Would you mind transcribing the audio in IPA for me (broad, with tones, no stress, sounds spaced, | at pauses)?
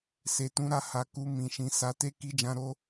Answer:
s e˨ t ũ˨˦ ɾ a˧ h a˨ k u˧ m ĩ˨ ʃ ĩ˨ s a˨˦ t e˦ k i˧ d͡ʒ ã˧ ɾ o˧